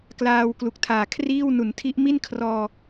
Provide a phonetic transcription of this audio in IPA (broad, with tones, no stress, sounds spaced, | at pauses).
k l aː˧ w k l u˨˩ k̚ tʰ aː˨˩ kʰ r iː˥˩ w n u˩˦ n tʰ i˦˥ ʔ m i˥˩ n kʰ r ɔː˧